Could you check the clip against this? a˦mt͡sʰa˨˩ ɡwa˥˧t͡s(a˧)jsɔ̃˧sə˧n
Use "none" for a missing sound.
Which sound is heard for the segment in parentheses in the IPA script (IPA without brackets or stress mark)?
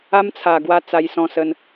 a˧